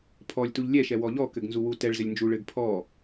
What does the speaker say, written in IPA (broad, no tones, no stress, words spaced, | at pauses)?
pʰɔlʲtuʎ lʲɛʃɛwɔ ʎɔkɘɡnzu wutɛɭ zɘlʲnd͡ʒuɭɘɡ pʰɔ